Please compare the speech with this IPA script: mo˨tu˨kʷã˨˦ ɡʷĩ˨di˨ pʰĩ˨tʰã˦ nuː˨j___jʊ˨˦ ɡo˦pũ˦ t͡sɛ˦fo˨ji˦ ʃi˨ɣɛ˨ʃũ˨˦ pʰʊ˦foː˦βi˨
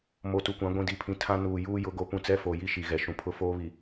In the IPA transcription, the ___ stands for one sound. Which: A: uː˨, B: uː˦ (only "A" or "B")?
B